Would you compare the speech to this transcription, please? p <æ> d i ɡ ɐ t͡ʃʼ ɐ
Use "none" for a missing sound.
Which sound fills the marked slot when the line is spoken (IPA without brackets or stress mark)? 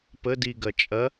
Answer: ə